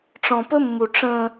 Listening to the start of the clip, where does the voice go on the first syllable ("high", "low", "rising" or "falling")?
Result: low